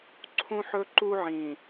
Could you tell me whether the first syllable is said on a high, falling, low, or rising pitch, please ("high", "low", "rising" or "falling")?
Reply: high